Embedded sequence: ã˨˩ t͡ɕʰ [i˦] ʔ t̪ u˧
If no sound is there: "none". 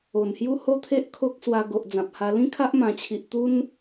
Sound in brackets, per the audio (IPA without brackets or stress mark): i˨